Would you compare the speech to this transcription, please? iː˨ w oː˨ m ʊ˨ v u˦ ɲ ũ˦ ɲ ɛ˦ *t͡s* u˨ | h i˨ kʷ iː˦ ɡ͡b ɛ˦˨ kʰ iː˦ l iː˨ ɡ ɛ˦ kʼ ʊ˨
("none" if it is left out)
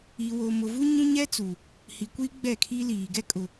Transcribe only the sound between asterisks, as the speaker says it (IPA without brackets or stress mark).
t͡s